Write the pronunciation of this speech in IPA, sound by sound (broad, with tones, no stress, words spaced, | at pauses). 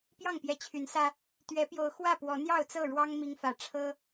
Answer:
pjɑ˥˨ŋpjɛ˨˦ t͡ɕʰy˨˦nsä˦ | t̪ɥɛ˨˦pjo˨˦ʊ̯ xwä˥˨pwɔ˨˦ n̪jɑ˥˨ʊ̯t͡sɤ˥˨ ɻwɑ˦ŋ mi˦ŋfä˨˦ ʈ͡ʂʰɤ˦